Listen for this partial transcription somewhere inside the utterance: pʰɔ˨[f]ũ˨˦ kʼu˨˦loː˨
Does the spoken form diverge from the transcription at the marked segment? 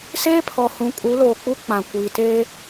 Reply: yes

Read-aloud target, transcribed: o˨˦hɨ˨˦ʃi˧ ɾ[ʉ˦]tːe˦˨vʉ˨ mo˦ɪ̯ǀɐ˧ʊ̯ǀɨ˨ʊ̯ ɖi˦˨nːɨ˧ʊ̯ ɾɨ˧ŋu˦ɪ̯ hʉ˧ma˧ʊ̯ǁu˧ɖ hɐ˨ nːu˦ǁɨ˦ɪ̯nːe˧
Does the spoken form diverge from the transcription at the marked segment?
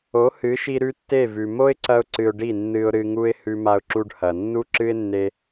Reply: no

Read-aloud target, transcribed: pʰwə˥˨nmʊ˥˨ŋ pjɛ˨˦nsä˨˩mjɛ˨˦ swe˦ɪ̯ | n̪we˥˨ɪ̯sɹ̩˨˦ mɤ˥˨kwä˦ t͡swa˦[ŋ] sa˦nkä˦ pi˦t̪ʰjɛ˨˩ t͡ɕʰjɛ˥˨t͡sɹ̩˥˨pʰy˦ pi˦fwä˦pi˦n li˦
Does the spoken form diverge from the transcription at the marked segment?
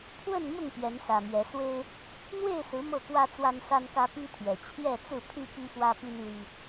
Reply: yes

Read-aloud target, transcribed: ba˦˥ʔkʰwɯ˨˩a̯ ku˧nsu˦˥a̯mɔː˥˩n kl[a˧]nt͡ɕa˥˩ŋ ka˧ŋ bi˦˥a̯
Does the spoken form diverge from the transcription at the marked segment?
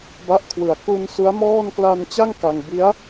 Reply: no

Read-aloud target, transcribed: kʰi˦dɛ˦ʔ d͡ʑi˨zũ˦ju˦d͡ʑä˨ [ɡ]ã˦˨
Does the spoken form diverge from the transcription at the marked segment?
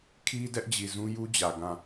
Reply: no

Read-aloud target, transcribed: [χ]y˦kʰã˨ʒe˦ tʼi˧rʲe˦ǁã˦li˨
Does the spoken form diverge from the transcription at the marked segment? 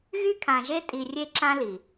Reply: yes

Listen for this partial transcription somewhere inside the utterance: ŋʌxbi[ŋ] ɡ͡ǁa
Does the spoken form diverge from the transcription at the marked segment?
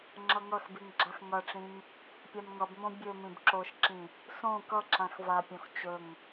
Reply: no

